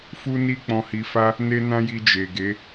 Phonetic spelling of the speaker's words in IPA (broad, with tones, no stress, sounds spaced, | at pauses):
f u˦ n i˦ k͡p ɔ̃˧ h i˧ f a˦ | n e˦ n ã˦ j i˧ d͡ʒ e˨ ɡ e˨˦